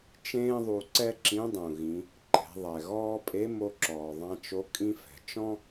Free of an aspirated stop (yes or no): yes